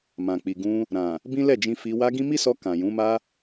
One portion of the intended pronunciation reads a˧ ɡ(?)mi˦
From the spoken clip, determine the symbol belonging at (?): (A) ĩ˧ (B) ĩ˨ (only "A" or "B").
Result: A